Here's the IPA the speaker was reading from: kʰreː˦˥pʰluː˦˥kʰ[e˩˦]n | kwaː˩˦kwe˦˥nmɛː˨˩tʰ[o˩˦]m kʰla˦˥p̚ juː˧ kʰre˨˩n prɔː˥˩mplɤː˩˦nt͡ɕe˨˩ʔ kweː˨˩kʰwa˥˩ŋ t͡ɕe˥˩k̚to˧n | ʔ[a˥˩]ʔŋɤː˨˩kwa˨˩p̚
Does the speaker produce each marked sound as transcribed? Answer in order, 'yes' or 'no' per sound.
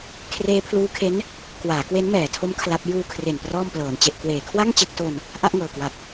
no, no, yes

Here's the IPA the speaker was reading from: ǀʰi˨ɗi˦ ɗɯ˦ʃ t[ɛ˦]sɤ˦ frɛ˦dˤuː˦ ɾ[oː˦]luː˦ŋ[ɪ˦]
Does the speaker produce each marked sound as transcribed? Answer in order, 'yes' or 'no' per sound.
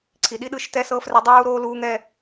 yes, yes, no

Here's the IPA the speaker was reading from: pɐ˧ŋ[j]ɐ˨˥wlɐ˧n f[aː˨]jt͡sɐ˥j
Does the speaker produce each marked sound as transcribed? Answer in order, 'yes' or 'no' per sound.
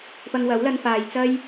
no, yes

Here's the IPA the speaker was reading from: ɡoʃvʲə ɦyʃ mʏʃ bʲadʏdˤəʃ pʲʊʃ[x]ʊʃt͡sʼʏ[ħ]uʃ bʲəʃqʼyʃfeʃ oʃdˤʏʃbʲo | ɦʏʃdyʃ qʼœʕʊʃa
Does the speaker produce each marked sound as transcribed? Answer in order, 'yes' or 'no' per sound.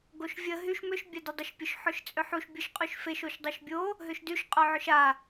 no, yes

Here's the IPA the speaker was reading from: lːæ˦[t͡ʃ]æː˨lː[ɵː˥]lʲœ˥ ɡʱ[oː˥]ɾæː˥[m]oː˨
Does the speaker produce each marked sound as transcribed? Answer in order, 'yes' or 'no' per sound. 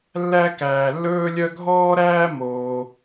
no, yes, no, yes

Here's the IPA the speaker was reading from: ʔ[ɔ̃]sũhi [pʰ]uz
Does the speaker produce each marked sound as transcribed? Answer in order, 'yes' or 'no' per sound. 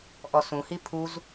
no, yes

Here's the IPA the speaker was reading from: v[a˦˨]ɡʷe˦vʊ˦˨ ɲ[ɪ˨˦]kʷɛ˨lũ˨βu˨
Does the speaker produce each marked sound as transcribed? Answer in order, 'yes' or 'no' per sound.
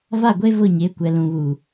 yes, yes

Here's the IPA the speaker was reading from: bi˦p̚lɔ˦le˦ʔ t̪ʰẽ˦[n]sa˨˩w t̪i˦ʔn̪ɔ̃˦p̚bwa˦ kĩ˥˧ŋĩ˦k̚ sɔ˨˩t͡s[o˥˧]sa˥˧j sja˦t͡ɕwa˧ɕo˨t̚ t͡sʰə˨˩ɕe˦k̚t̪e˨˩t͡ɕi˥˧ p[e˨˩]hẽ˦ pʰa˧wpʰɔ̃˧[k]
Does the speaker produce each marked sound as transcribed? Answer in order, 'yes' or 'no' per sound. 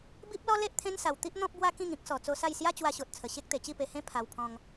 yes, no, no, no

